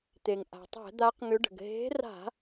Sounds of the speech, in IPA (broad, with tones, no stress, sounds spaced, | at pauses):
t̪ e˩ ŋ ʔ a̤˩ tˤ ɛ̤˧˩˧ d̪ a˨˦ q ŋ ʏ˨˦ ɖ ə̤˩ ɡ ɦ e̤˨˦ r a̤˧˩˧